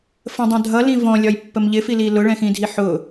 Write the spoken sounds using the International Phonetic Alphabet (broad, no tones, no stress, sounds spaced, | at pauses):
f ə̃ dˤ ə̃ dʱ ʌ l ĩ v ɔ̃ lʲ ɒ j pː ə m ʎ ɪ f i l i l ʊ ɭ ɛ̃ x ĩ dʱ i ħ ʊ